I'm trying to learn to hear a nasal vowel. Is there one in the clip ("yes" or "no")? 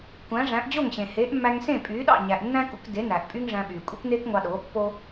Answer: yes